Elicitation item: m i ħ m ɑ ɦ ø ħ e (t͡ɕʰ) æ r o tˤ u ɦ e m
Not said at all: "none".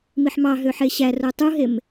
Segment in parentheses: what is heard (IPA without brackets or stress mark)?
ɕ